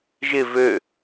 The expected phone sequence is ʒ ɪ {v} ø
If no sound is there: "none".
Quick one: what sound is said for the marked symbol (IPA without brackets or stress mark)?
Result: v